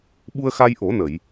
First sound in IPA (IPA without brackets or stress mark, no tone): ɓ